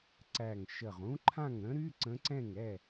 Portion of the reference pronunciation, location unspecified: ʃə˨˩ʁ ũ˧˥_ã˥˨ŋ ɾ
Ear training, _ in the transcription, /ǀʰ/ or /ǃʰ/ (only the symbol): ǃʰ